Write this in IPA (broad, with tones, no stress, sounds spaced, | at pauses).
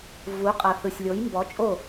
v u˨˦ qʼ ʌ˨ θ ɯ˨ sʲ lʲ o˨˦ j m b ɔ˨˦ t͡ʃʼ o˦˨